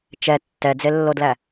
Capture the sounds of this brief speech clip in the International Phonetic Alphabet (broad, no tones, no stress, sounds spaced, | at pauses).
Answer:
t͡ʃ ɛ tː ɛ d͡z e lː o d l æ